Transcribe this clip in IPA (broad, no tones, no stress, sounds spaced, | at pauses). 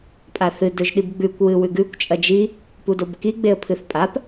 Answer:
pʼ a θ ɨ d ɵ ʒ ɗ i b ɡ͡b ʉ kʷ w ɨ w ʉ ɡ ʉ kʷ t͡ʃʼ ɐ d͡ʒ i | p u d o b k i ɡ͡b e ə̯ pʰ ɨ θ pʼ a p